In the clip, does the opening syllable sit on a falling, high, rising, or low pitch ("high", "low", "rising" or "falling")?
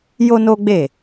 high